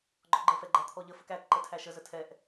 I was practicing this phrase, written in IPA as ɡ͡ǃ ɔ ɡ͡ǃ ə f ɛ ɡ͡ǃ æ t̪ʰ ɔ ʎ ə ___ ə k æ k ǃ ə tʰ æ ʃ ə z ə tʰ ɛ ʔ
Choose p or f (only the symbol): f